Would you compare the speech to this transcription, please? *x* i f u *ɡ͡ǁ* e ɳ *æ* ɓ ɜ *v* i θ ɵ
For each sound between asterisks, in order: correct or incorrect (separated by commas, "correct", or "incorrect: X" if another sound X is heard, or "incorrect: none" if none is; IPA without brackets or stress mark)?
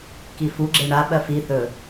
incorrect: k, correct, incorrect: a, incorrect: f